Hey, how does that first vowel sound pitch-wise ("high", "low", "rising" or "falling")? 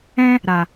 high